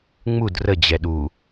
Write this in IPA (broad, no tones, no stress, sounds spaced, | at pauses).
ŋ͡m u d r ə d͡ʑ ɛ ɗ u